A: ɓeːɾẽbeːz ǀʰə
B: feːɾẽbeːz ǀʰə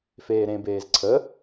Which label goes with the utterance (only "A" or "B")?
B